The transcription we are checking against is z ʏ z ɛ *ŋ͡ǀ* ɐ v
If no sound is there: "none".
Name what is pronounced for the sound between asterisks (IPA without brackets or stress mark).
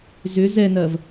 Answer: n